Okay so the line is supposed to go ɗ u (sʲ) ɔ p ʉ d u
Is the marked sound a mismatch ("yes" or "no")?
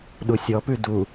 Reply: no